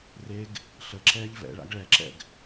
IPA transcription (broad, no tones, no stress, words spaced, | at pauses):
reɡ | ɬəǁɛːʎ vɛ̰ɭa̰ɡ ɭɛǁɛ̰ɡ